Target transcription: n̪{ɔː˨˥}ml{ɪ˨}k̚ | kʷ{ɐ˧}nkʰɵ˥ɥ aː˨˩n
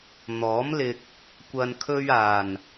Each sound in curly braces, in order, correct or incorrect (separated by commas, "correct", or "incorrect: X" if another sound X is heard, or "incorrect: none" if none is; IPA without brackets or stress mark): correct, incorrect: ɪ˧, correct